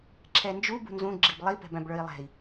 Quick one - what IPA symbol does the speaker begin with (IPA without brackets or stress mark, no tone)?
ǁʰ